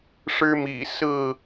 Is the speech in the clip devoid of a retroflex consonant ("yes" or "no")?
no